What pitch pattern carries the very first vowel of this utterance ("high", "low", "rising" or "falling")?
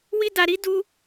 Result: high